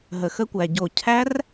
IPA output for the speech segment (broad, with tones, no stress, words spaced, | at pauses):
ɦə˨˩xə˦˥kʷæ˨˩ ɟo˨˩cʰæ˦˥r